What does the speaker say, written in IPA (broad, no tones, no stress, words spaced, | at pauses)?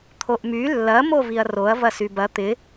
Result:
t̪ʰoʔmy lːɐ moviɐ̯roɐ̯ vɐsybɐ t̪ɪ